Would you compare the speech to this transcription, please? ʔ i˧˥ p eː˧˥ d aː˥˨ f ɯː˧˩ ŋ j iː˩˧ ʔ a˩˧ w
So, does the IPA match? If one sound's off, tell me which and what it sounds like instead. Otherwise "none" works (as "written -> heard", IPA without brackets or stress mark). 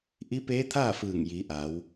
d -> t̪ʰ